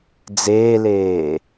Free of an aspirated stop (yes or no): yes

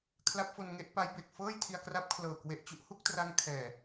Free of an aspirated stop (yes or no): no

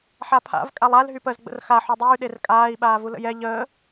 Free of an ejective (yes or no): no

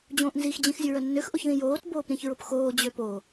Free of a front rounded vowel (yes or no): no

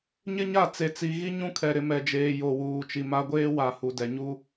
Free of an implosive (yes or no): yes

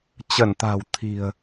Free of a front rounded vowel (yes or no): yes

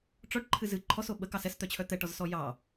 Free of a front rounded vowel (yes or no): no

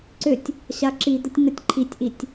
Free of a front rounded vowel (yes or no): no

